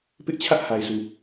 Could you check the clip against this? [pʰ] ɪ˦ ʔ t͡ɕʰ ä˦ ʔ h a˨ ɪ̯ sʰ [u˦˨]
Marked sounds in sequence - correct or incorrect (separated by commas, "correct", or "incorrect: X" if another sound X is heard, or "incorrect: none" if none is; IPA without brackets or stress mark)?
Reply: incorrect: p, incorrect: u˨